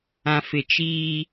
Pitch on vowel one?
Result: low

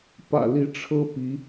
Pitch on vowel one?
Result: low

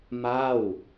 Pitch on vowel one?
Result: falling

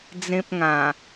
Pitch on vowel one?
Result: high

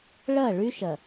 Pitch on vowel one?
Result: falling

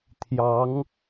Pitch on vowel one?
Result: rising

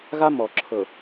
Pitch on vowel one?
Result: high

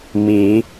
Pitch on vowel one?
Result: rising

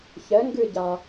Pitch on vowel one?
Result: rising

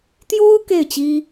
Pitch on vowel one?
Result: high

